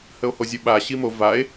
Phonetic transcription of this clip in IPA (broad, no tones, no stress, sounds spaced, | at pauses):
h ə o̯ h o zʲ ɵ ɓ a ɕ i m o v a e̯